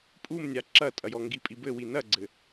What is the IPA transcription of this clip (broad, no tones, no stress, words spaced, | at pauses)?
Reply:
pʼumnʲa ǁɐtʼɐjɔ ŋɡipʼibɘwi nɐɡ͡ǀɘ